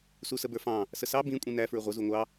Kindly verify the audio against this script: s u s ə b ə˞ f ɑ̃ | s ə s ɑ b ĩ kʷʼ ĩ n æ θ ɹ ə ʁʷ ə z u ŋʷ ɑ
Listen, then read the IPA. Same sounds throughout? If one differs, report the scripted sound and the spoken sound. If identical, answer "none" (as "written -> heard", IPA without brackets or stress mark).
θ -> f